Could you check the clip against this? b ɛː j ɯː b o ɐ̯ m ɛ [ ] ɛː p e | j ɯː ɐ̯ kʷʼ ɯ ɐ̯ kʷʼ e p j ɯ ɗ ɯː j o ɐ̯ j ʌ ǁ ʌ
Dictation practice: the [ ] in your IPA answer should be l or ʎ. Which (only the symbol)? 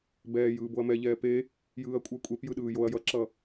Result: ʎ